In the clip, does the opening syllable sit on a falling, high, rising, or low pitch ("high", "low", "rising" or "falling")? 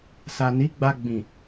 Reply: low